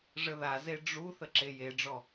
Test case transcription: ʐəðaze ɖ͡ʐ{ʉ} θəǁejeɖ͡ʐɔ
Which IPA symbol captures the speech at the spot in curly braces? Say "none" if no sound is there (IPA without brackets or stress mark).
u